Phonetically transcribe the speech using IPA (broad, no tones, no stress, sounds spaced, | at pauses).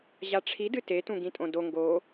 ʑ a ʈ͡ʂʰ i d ɨ t e t ũ ɡ ĩ tʼ õ d o ŋ ɡ o